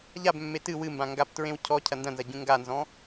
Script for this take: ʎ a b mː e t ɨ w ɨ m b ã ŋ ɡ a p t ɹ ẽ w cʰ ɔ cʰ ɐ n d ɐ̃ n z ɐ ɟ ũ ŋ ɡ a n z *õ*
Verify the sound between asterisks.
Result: incorrect: ɔ̃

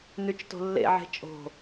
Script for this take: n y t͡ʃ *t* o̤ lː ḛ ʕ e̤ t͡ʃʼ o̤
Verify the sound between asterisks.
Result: correct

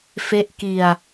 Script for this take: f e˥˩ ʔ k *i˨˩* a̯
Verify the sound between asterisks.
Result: incorrect: i˧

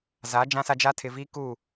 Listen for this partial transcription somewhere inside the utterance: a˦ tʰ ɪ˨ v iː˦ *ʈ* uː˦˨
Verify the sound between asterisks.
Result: incorrect: k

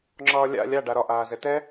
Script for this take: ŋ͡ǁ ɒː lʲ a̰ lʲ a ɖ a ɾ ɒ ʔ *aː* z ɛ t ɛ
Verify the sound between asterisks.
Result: correct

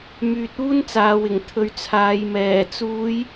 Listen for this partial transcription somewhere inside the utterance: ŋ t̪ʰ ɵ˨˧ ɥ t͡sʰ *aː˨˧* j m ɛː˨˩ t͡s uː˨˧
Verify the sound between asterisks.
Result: correct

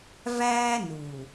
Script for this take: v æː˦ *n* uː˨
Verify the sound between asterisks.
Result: correct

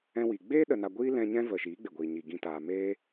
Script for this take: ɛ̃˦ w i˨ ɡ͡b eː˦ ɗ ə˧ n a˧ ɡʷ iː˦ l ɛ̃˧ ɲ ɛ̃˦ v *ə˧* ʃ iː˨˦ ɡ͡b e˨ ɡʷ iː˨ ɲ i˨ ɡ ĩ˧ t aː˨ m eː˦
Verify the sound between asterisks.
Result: incorrect: ə˨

